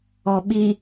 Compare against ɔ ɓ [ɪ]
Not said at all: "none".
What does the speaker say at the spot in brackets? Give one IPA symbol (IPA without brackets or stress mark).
i